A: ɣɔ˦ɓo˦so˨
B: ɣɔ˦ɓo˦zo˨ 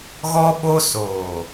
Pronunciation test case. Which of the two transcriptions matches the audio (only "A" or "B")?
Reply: A